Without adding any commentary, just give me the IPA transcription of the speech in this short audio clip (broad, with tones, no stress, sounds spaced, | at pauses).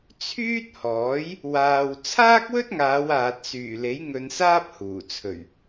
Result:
t͡sʰ yː˥ t̚ h ɔː˨˥ j | w aː˨ w t͡sʰ aː˥ k̚ w ɵ˥ t̚ ŋ aː˨˧ w aː˨ t̚ s yː˨˩ l e˨˥ j ŋ ɵ˧ n s aː˥ p̚ h uː˨˩ t͡sʰ ɵ˨˩ ɥ